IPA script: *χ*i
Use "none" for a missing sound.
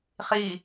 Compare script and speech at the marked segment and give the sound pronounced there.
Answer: χ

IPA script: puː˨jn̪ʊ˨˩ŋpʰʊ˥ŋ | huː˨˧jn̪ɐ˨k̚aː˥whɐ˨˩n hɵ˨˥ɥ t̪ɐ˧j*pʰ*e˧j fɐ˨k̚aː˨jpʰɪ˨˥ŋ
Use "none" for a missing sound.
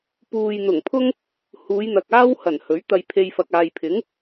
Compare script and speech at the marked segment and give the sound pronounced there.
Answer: pʰ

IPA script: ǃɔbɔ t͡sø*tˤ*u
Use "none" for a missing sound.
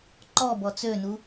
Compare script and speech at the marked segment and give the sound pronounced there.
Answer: n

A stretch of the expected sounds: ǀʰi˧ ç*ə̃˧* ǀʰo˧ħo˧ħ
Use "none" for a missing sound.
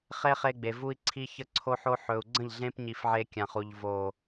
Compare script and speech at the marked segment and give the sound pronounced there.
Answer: ə˧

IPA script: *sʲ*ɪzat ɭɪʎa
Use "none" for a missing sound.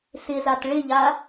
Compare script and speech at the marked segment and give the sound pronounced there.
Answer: s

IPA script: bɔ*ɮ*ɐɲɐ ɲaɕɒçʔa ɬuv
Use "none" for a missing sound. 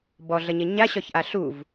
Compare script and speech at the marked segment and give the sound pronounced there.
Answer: ɮ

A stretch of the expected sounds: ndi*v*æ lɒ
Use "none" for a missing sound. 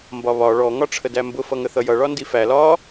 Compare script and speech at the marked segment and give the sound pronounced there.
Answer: f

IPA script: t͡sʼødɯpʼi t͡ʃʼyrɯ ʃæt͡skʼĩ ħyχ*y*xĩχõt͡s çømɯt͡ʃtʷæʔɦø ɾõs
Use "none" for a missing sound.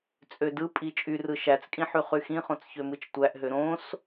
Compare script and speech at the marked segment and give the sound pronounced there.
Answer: y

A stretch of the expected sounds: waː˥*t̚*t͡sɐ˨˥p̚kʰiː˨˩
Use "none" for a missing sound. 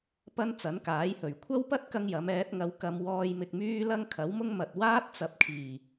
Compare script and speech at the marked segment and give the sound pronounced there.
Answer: t̚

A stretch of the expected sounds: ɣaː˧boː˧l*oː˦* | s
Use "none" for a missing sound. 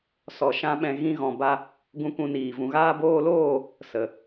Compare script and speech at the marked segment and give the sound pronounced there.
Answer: oː˦˨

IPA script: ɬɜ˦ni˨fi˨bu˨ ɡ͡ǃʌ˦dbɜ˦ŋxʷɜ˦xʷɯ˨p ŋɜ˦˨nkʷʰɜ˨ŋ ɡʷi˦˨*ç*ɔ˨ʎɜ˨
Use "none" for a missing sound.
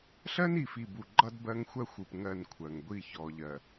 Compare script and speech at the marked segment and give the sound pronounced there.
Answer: ç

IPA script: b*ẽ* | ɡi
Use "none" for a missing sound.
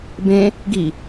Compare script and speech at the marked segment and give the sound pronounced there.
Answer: ẽ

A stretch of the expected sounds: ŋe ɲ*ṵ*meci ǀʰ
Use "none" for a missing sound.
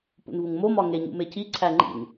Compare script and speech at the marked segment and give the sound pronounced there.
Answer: ṵ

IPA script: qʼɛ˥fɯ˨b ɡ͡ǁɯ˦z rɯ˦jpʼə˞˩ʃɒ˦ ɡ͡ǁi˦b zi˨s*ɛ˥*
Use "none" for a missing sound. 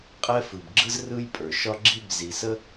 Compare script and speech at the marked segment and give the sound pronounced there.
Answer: ə˥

